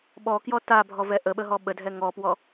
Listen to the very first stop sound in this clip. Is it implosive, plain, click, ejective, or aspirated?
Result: implosive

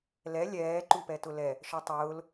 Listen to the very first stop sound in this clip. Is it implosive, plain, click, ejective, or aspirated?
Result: click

